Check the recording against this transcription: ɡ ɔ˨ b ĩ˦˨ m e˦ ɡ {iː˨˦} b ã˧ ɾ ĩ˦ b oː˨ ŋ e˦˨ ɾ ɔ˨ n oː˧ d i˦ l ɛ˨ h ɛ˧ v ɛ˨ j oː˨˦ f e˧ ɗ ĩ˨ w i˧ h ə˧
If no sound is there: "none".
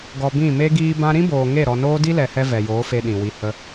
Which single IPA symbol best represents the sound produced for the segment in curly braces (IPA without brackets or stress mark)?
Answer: iː˦